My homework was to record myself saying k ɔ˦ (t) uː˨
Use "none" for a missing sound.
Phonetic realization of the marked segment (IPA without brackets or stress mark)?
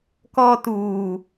t